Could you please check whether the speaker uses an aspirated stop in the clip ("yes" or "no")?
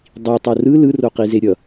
no